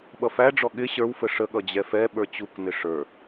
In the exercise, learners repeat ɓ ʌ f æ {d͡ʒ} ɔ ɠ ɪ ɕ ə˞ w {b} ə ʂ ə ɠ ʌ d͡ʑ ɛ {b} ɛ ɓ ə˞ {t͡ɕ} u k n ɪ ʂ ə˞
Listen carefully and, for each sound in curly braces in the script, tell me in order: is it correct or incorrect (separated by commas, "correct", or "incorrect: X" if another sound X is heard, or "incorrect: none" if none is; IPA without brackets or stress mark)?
incorrect: ɖ͡ʐ, incorrect: f, incorrect: f, correct